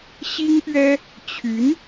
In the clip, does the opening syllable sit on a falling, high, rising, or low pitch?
high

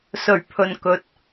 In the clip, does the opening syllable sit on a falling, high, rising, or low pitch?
low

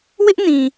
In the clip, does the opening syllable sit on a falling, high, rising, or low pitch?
high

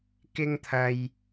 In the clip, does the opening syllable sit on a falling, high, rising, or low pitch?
high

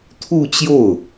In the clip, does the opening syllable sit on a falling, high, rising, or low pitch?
falling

